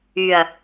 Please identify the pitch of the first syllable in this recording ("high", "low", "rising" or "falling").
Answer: low